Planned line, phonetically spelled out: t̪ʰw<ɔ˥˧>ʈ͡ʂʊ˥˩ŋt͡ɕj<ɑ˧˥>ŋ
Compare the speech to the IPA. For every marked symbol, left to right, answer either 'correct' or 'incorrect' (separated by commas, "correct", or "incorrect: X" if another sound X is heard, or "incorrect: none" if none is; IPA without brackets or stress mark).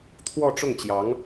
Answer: correct, correct